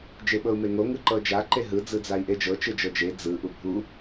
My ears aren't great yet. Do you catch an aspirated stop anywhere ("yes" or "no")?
no